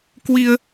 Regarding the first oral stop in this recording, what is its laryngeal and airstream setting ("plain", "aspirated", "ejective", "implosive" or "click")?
plain